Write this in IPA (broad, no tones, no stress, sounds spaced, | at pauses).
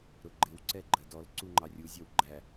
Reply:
ɾ ʊ ɡ͡ǃ ɪ w ǀ ɛ ɡ͡ǃ ɜ d ɔ l ǀ u ŋ͡ǃ ɑ rʲ u zʲ ɒ w ɡ͡ǃ æ